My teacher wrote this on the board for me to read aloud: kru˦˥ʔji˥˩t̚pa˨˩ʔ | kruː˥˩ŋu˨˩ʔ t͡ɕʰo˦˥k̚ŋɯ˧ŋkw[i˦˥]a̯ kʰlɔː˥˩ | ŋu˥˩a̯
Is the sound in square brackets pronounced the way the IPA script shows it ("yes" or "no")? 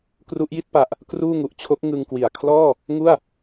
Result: no